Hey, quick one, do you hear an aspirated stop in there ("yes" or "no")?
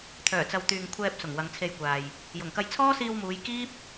yes